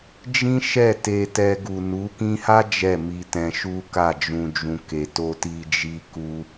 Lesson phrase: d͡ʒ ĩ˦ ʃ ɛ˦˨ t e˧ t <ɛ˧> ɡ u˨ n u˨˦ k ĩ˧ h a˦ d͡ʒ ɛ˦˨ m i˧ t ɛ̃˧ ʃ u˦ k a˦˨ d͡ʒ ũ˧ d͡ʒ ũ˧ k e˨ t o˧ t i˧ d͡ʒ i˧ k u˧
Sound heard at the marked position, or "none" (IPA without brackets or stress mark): ɛ˧